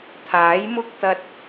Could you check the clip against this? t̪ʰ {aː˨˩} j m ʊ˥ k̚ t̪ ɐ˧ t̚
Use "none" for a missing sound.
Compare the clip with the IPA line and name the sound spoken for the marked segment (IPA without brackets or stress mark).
aː˨˥